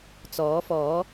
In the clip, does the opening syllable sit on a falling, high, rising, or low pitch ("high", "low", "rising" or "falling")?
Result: rising